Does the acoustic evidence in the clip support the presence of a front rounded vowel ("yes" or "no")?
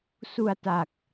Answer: no